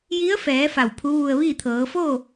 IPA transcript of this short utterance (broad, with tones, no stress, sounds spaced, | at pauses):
j i˧˥ ə̯ f ɛː˩˧ f a˧˩ w pʰ u˧˥ ʋ u˧ ə̯ ʋ i˥˨ t̪ʰ ɤː˩˧ f o˥˨